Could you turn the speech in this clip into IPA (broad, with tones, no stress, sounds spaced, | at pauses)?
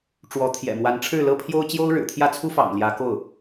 ʈ͡ʂ w ɔ˧˥ t̪ʰ j ɛ̰˨˩ m w a˧˥ n ʈ͡ʂʰ ɻ̩˥˩ l ɤ˥ pʰ j o˥ ʊ̯ t͡ɕ j o˥ ʊ̯ ɻ ɻ̩˨˩ t̪ʰ j ä˥˩ t͡sʰ u˥ f ɑ̰˨˩ ŋ l j ä˧˥ k o˥˩ ʊ̯